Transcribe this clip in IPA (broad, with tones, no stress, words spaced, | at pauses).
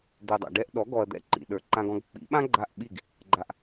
d̪ə˞˨dˤa̰˨ɖɛ˧ʔɗɔ˨˦ ɡɔ˨ɐ̯d̪ɛ̰˧ǃḭ˨ ɗə˞˨ǃã˧ɡɔ̃˧ɡ k͡pḭ˨˦ɓã˦ ɡ͡ǃa˦˨ʔɓi˦˨ɡ | ɡ͡ǃa˧ʔ